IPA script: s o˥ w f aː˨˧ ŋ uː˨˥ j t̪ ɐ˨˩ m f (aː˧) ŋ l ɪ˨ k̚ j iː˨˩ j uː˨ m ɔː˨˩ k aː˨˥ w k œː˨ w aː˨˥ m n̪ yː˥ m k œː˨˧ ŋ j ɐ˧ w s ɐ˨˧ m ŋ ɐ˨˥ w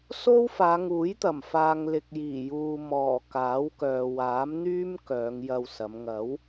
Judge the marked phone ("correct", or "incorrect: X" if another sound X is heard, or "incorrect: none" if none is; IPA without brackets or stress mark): incorrect: aː˨